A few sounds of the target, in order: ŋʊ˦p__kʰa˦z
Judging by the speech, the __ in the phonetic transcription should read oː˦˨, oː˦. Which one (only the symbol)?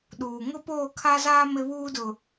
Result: oː˦˨